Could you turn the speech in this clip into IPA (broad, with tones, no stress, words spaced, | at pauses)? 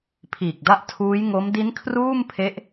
pʰiː˨˩k̚da˦˥ʔ tʰuː˦˥jŋo˦˥m di˦˥n kʰruː˥˩mpʰe˦˥ʔ